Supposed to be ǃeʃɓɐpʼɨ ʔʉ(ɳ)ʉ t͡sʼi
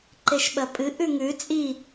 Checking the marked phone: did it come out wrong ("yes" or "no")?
yes